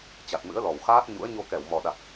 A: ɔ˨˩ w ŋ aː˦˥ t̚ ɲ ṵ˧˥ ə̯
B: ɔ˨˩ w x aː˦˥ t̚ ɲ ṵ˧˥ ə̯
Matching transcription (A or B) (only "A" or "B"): B